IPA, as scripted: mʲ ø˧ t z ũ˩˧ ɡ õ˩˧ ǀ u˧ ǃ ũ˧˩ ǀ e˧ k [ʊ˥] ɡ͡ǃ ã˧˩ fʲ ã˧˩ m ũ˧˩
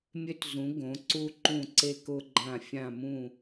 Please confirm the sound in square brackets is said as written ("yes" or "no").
no